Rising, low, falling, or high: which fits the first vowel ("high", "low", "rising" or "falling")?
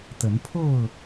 rising